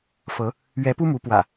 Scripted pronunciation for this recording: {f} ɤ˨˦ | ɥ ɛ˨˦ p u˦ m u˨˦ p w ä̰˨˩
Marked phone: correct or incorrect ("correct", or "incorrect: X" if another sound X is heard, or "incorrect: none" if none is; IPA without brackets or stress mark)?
correct